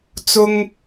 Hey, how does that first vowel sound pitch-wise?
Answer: high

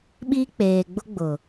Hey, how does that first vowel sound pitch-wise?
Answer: high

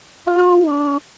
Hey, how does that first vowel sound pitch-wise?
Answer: high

